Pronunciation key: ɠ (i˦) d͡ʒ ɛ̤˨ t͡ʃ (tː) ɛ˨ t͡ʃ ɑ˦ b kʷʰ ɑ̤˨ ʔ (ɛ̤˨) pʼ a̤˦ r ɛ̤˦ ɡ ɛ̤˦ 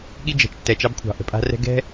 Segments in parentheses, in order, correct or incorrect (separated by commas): correct, correct, incorrect